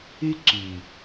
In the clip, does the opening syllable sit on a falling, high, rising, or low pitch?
high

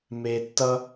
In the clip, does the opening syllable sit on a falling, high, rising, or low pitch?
low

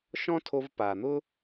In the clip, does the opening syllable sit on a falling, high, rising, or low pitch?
high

